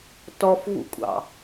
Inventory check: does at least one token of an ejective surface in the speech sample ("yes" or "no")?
yes